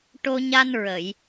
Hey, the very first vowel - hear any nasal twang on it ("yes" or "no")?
no